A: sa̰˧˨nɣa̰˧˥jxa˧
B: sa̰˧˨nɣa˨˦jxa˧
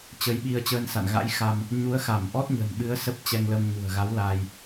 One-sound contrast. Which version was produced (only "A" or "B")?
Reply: A